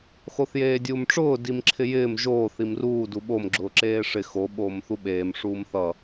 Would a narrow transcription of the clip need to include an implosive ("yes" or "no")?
yes